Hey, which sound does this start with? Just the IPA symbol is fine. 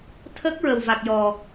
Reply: t̪ʰ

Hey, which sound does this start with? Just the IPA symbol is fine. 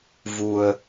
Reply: v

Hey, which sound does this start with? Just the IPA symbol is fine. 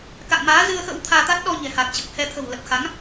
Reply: k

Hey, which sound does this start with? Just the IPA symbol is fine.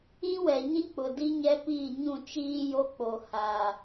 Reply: ĩ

